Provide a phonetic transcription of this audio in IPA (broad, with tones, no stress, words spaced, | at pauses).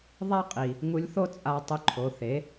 ðˤa˥ qʼi˩ | ŋu˧lʲθo˥ t͡sʼa˧tˤʊ˧ǃʰo˩˧ θe˩˧